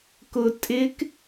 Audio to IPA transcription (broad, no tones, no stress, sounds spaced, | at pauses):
k ʊ tʼ ɪ k